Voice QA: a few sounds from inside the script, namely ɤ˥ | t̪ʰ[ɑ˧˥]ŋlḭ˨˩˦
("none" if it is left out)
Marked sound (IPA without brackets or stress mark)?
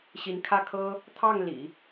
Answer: ɑ˥˩